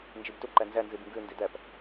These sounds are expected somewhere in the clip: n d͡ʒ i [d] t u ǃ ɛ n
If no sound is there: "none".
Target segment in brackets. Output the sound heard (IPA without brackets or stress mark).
b